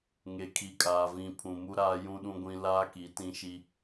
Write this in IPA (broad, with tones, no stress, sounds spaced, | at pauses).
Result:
ŋ e˨ kʰ i˨ kʼ aː˨ v ĩ˨ pʰ ũ˨ m u˦ ɾ aː˦ j ũ˦ ɗ ũ˦ ɡʷ ĩ˦ l aː˦ k i˨˦ t ĩ˦ ʃ i˦